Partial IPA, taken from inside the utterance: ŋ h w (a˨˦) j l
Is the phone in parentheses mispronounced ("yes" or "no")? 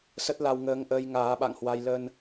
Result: yes